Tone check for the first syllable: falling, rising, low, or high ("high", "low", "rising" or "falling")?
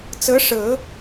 rising